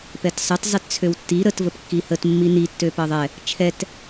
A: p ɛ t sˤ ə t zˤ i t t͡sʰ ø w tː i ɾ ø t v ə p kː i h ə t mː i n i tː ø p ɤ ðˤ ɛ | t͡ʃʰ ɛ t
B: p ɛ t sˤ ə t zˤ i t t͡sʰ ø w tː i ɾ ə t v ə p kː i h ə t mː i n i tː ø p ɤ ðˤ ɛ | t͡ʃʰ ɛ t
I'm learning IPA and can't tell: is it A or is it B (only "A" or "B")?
B